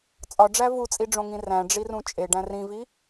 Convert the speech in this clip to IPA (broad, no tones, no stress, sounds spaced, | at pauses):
t͡sʼ ɒ ɖ͡ʐ æ v u t͡sʼ i ɖ͡ʐ õ ŋ ĩ r æ̃ ɖ͡ʐ i r ũ t͡ʃʼ e ɖ æ̃ r ĩ v i